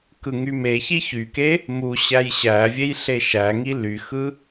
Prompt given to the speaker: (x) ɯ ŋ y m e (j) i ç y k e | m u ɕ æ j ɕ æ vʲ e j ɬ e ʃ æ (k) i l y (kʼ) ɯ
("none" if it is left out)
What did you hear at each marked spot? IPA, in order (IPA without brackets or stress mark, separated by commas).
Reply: k, ç, ŋ, x